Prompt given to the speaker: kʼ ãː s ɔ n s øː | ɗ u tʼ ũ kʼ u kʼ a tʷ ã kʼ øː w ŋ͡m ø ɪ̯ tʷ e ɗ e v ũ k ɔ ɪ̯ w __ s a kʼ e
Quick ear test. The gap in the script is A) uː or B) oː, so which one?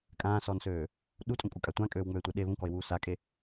A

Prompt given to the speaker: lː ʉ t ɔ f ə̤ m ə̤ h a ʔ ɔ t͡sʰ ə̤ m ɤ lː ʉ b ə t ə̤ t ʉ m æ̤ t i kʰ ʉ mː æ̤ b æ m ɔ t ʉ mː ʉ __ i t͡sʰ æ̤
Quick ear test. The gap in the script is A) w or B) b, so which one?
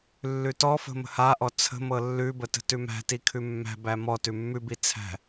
B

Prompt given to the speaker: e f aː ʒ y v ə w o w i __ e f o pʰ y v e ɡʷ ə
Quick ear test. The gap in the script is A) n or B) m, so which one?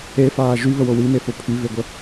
B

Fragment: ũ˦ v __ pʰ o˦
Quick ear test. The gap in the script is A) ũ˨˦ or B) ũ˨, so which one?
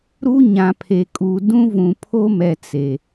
B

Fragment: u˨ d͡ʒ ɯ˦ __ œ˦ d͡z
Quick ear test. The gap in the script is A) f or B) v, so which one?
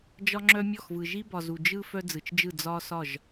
A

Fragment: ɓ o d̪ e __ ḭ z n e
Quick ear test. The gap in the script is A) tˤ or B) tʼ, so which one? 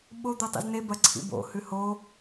A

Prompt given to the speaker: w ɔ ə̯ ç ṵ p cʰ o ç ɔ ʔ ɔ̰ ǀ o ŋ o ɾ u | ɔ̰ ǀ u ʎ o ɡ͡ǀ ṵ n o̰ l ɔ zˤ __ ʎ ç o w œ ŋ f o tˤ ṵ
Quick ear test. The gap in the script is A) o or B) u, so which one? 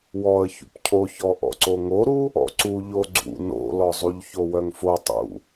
B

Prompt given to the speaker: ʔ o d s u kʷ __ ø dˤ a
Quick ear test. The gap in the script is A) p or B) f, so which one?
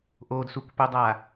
A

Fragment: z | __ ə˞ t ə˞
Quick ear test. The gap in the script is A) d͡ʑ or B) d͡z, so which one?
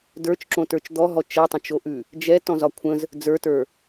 B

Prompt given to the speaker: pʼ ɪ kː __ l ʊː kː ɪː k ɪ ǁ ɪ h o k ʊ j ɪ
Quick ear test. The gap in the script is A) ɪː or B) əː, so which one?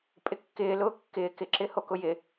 A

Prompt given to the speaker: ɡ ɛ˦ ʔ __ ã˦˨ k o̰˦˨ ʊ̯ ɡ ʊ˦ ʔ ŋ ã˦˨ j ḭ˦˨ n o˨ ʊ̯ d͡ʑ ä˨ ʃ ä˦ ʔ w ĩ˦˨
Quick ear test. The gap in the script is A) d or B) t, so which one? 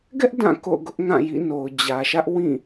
A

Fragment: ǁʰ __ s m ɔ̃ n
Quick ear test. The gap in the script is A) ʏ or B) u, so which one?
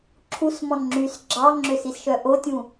B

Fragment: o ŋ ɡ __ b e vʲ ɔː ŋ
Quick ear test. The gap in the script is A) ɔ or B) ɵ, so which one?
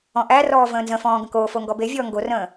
A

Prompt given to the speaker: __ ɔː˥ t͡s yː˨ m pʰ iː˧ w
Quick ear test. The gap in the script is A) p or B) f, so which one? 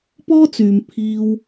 A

